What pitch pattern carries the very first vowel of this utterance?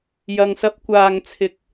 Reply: low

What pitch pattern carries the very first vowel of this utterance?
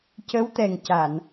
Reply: rising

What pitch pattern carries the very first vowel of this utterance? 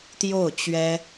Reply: falling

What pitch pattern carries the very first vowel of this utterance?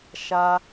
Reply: high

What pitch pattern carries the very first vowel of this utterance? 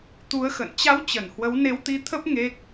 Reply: rising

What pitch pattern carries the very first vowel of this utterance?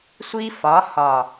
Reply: high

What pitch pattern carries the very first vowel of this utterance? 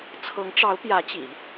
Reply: rising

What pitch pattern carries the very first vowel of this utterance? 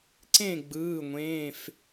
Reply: falling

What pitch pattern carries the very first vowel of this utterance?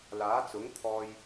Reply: rising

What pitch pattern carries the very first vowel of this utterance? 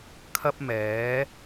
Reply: high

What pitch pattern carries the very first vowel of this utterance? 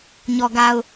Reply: low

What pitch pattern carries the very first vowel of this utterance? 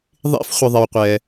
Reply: high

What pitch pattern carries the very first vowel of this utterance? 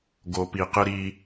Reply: low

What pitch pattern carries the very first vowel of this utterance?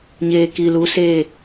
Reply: low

